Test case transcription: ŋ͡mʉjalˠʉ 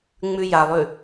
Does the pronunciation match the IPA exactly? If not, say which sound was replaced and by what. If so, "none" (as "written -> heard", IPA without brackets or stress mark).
none